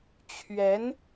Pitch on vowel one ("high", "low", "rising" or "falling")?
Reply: rising